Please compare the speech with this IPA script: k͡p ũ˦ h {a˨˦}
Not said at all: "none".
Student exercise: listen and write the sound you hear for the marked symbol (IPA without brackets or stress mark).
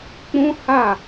a˦˨